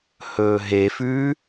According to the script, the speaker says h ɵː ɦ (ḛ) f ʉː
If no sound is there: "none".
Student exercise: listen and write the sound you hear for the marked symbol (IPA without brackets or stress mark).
e